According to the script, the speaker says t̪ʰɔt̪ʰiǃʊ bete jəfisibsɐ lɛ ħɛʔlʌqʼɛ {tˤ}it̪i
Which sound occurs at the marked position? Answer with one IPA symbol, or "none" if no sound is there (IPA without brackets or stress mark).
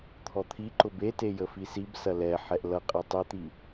tˤ